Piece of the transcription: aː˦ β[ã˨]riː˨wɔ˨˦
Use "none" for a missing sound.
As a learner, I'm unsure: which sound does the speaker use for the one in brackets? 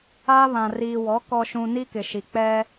ã˨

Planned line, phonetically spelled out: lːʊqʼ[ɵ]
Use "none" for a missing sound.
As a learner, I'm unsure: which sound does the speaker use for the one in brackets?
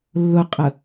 ə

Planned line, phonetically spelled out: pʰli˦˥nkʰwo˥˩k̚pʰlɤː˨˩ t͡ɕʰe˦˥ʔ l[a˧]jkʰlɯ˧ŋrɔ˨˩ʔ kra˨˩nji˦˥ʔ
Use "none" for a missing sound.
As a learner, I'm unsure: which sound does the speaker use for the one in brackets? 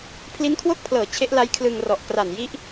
a˦˥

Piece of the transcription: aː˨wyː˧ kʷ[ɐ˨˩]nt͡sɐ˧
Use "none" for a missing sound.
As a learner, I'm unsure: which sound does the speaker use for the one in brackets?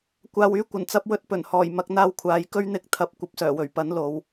ɐ˨˩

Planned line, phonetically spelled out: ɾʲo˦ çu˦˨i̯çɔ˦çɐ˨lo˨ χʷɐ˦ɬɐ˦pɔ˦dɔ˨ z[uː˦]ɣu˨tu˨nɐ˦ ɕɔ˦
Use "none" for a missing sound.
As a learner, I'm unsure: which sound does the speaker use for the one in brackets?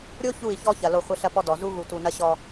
u˦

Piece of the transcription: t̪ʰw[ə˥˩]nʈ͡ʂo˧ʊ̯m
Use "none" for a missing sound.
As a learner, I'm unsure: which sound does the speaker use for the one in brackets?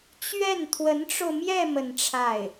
ə˧˥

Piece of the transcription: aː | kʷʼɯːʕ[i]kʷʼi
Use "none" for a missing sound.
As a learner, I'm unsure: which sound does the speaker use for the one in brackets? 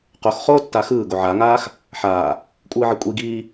i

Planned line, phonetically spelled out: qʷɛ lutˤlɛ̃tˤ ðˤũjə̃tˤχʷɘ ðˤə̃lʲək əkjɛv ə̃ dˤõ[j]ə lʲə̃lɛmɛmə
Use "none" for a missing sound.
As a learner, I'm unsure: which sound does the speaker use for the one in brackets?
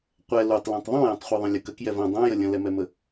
j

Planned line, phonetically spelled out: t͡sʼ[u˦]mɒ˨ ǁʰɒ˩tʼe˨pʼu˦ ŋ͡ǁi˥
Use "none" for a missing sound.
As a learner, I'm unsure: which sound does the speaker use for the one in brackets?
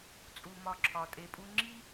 u˩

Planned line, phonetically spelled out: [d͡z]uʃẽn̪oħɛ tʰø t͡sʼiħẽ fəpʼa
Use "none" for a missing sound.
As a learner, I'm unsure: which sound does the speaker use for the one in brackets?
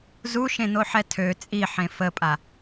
z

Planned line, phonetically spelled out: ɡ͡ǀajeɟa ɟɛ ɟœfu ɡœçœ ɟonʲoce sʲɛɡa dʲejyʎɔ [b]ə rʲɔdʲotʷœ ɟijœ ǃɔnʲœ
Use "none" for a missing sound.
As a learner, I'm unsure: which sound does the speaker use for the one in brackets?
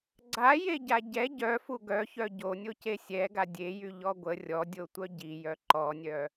ɡʷ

